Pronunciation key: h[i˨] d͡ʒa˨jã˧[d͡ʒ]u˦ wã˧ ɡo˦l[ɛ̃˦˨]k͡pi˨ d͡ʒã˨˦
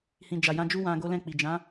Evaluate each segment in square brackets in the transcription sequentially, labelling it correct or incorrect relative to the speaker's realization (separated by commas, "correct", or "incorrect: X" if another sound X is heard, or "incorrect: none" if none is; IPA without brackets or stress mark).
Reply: incorrect: ĩ˨, correct, correct